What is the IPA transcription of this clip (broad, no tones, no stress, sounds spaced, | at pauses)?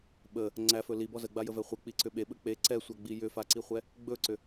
ɓ ə | ŋ͡ǀ æ f ɵ l i b ɔ z ə ɡ͡b a j ə v ɛ χʷ ə k͡p i ǀ ʏ ɓ e ɓ ə k͡p e ǀ ɛ sʷ a ɡ͡b i j ʏ f a ǀ i χʷ ɛ | ɡ͡b ɵ ǀ ʏ